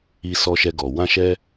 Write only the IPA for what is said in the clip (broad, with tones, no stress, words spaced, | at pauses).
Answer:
i˧ sɔ˧ʃɛ˧ɡɔ˨ wã˧ʃɛ˧